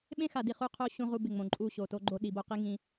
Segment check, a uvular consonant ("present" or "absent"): present